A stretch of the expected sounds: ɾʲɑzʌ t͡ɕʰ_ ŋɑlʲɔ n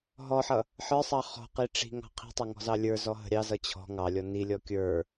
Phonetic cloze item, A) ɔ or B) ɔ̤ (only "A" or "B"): B